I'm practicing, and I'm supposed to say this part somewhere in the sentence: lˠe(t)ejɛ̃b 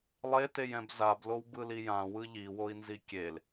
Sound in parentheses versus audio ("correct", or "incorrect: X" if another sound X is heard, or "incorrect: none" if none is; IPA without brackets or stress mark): correct